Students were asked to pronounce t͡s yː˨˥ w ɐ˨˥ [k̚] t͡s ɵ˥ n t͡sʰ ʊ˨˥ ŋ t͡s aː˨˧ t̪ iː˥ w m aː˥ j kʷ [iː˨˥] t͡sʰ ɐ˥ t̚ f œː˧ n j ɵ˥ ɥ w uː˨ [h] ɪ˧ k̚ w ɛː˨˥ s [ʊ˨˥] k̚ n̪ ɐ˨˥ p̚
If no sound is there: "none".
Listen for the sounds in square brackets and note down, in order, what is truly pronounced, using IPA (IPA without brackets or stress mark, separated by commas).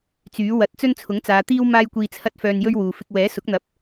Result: t̚, iː˧, f, ʊ˨˥